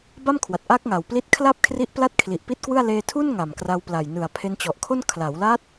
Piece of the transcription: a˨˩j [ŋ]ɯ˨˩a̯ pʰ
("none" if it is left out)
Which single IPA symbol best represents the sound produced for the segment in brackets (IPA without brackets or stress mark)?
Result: n